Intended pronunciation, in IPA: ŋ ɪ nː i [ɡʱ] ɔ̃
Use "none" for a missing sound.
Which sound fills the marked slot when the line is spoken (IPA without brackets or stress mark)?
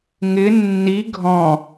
ɡʱ